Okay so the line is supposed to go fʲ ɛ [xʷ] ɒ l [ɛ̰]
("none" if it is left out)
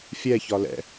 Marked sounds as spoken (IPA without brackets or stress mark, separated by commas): ç, ɛ̰